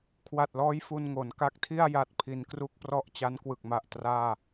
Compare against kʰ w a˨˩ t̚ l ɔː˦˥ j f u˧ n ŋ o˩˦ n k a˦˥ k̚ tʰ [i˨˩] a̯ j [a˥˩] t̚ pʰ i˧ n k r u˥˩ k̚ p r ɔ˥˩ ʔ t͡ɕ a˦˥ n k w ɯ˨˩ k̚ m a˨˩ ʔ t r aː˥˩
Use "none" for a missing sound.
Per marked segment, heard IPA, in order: i˥˩, a˦˥

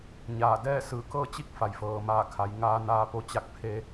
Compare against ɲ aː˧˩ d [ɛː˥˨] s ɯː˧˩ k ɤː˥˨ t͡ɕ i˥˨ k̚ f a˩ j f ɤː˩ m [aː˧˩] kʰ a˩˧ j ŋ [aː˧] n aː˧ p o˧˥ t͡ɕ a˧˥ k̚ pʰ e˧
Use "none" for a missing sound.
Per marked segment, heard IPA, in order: ɛː˥˨, aː˧˩, aː˧

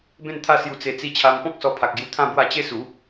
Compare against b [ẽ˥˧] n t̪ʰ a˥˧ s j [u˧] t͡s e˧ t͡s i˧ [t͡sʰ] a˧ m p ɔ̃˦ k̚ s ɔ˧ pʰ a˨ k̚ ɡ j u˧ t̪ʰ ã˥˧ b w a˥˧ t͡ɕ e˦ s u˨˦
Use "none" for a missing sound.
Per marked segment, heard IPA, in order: ẽ˥˧, u˧, t͡ɕʰ

